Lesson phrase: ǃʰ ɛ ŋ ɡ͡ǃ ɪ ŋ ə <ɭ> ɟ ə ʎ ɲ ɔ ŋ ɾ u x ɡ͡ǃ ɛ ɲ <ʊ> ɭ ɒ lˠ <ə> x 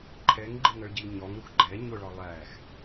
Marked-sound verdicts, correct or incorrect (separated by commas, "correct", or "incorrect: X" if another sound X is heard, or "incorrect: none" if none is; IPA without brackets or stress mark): correct, correct, incorrect: æ